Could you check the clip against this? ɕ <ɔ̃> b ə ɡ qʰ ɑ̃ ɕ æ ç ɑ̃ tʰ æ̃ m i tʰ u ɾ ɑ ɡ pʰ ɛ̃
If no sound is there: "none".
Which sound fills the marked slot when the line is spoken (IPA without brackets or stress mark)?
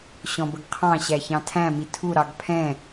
ɔ̃